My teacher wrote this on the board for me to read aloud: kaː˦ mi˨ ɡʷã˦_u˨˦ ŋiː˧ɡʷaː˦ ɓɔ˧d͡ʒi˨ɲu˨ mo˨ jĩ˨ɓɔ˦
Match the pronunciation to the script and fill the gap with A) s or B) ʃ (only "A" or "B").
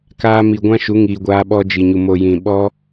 B